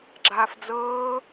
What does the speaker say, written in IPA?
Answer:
ɡ͡ǁ aː f d͡z ɤː

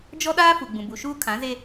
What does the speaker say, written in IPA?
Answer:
d͡ʒ ɔ˦ ɗ aː˦ f u˨ ɡ͡b ũ˨ b u˨ ʃ uː˦ kʰ ã˨˦ z e˦

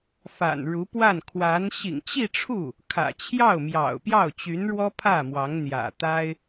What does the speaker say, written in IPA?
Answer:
f a̰˨˩ n ɻ u˧˥ p w a˥˩ n kʰ w a˧˥ n ɕ ḭ˨˩ ŋ t͡ɕ i˥˧ ʈ͡ʂʰ u˥˩ | kʰ ä̰˨˩ t͡ɕʰ j ɑ˥˩ ʊ̯ m j ɑ̰˨˩ ʊ̯ p j ɑ˥˩ ʊ̯ t͡ɕ y˧˥ n ɻ w ɔ˥ pʰ ä˥˩ m w ɑ˧˥ ŋ n̪ j ä̰˨˩ t̪ a˥ ɪ̯

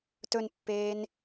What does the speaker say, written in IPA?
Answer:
t ɵ n pː eː n

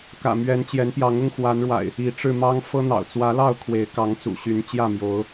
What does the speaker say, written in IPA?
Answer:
k ä̰˨˩ m ɥ ɛ˨˦ n t͡ɕ j ɛ˨˦ n p j ɑ˨˦ ŋ ʊ˦ ŋ x w a˨˦ n ɻ w a̰˨˩ ɪ̯ | i˨˦ ʈ͡ʂ ɻ̩˧ m ɑ˦ ŋ f ɤ˦ n̪ ɑ̰˨˩ ʊ̯ t͡s w ä˨˦ l ɑ˥˨ ʊ̯ kʰ w e˨˦ ɪ̯ k ɑ˨˦ ŋ t͡s ṵ˨˩ ɕ y˨˦ n t͡ɕ j ä˥˨ m j o˨˦ ʊ̯

